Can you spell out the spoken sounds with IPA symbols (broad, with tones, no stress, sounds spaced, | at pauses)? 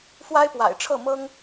f w a˥ ɪ̯ p w a̰˨˩ ɪ̯ ʈ͡ʂʰ ɤ˥˩ m ɤ˥ ŋ